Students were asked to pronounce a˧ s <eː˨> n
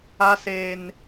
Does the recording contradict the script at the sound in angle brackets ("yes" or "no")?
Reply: no